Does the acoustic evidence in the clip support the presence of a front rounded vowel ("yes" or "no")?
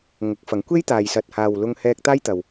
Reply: no